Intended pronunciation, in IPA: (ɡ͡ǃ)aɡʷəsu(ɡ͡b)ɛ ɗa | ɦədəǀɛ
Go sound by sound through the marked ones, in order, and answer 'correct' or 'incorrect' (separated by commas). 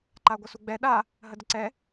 incorrect, correct